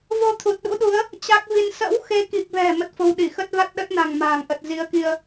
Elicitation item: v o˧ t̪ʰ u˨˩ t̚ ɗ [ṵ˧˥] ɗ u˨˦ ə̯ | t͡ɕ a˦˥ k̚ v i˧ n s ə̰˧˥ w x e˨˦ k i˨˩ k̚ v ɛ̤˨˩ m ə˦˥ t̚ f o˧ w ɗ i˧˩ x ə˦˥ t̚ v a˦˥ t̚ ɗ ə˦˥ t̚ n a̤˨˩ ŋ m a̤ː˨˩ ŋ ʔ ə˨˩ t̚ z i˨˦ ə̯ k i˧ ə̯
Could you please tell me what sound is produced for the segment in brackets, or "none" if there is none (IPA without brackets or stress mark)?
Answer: ṵ˧˥